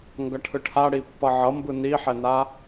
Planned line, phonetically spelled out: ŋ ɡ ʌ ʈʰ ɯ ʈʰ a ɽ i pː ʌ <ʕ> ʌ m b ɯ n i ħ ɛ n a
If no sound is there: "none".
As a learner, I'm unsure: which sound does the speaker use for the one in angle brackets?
ʕ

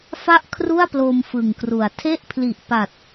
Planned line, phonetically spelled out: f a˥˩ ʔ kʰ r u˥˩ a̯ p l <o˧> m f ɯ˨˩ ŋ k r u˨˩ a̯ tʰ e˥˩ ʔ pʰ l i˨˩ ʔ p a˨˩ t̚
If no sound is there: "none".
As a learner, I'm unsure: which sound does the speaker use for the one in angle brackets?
o˧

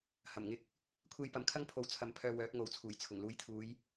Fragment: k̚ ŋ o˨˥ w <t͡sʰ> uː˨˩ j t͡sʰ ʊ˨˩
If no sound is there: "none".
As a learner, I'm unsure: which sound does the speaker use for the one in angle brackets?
t͡sʰ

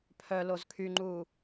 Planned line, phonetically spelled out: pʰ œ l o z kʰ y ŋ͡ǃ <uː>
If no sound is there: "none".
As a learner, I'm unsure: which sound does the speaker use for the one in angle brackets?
uː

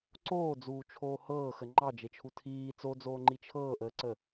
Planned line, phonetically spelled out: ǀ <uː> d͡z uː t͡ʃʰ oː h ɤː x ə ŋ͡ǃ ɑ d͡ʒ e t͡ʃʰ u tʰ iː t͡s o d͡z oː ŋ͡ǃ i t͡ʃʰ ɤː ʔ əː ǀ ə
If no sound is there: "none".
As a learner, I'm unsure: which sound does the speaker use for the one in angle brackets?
oː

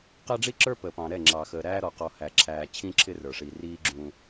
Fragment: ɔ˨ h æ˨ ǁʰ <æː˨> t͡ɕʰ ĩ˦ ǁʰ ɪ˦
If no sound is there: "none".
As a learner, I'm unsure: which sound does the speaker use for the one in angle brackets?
æː˨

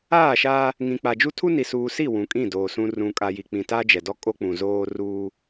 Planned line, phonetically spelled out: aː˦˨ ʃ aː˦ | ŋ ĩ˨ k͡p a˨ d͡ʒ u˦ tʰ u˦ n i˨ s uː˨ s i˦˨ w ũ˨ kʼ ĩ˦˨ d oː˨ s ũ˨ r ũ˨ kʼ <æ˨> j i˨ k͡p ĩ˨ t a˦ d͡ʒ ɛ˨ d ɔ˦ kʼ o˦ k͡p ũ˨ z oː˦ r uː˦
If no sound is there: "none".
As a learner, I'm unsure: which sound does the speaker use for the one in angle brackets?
a˨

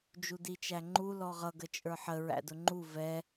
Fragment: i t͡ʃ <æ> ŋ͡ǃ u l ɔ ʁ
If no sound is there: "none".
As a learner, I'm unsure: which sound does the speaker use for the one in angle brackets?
æ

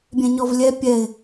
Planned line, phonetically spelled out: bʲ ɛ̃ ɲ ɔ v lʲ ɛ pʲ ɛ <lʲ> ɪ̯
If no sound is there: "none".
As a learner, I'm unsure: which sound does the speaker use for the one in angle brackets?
none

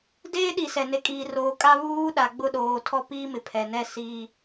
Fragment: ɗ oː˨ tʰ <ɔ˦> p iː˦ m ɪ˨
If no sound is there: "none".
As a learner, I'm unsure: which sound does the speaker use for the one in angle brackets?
ɔ˦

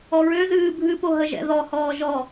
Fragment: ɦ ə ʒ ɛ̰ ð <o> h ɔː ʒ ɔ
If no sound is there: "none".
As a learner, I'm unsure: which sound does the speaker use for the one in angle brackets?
ɔ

